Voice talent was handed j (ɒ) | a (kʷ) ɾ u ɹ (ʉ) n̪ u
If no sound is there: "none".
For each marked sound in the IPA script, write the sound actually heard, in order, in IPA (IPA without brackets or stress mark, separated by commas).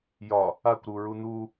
ɒ, kʷ, u